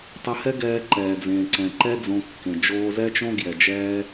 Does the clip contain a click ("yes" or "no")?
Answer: yes